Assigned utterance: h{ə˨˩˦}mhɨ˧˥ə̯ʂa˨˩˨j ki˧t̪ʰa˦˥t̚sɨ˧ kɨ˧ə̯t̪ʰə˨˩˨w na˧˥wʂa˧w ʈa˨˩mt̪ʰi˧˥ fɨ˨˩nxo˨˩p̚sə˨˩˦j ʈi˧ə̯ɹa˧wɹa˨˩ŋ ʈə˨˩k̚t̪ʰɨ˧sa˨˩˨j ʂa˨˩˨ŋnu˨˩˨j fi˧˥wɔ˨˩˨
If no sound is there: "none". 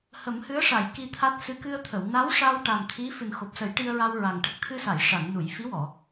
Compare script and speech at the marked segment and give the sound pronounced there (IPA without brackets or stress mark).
ə˨˩˦